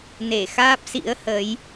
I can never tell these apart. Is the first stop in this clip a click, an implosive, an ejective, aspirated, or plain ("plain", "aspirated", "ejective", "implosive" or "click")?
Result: plain